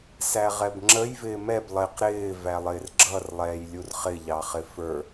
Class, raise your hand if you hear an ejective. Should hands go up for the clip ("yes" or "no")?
no